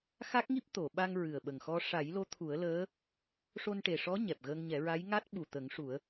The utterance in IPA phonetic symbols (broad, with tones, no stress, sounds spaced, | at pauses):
x a˦˥ k̚ ŋ i˦˥ p̚ t̪ o˨˩˨ ɓ a˧ ŋ ɹ ɨ˨˩ ə̯ ɓ ə˨˩ ŋ x ɔ˧ ʂ a˨˩˦ j l o˧˥ t̪ʰ u˨˩˦ ə̯ l əː˧˥ | ʂ o˧ n ʈ e˨˩ ʂ ɔ˧˥ ɲ ɛ˨˩ p̚ ɣ ə˧ ŋ ɲ ɛ˨˩˦ ɹ a˧˥ j ŋ a˦˥ t̚ ɓ u˨˩ t̪ ə˨˩˦ ŋ ʂ u˨˩˦ ə̯